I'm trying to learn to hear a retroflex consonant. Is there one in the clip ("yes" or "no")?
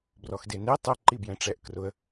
yes